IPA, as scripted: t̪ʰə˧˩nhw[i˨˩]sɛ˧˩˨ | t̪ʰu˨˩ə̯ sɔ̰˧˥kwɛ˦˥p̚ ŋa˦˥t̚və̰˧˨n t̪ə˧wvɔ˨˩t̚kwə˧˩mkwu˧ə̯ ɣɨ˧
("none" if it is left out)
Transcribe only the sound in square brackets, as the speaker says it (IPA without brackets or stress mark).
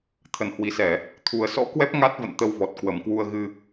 i˨˩